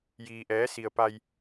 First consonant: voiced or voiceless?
voiced